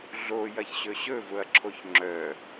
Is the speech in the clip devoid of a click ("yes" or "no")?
no